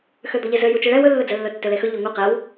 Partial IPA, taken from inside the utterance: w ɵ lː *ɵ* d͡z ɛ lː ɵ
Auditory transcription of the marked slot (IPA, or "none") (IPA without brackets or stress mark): ɵ